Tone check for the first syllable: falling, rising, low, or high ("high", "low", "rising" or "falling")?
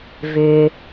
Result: low